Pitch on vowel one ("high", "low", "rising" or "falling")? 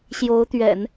rising